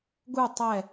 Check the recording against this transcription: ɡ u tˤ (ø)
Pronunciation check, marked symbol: incorrect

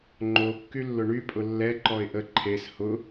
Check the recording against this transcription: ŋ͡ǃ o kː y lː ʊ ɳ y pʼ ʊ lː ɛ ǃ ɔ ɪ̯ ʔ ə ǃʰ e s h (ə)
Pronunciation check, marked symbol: incorrect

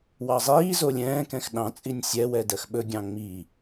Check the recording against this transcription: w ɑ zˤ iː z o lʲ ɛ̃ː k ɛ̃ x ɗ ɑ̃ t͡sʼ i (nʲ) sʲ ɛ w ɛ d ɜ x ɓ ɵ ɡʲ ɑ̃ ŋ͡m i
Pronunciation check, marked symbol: correct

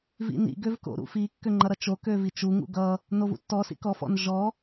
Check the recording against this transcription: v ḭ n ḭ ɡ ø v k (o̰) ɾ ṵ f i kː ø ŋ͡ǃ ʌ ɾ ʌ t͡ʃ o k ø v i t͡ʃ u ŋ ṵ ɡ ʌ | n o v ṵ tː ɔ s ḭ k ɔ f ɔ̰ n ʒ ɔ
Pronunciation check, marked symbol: correct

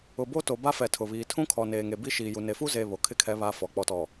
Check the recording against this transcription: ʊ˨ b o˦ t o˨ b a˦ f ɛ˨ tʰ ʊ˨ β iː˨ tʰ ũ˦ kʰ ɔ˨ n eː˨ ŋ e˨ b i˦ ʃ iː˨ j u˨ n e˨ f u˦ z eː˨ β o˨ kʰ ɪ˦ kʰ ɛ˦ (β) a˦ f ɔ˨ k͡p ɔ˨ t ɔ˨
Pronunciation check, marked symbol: correct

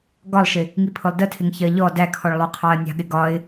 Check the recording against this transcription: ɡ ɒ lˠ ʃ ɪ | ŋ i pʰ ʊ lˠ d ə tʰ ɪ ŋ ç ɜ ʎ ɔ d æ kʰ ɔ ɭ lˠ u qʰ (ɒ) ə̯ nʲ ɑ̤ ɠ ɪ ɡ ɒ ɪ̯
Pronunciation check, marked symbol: incorrect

